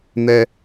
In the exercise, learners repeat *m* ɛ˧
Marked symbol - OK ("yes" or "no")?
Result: no